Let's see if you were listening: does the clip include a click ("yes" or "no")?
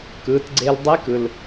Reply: yes